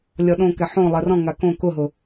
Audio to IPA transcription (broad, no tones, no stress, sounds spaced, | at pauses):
lʲ ɔ ɗ õ k ɛ ħ õ lˠ ɛ r ɔ̃ ŋ a k õ k ʊ ɦ ʊ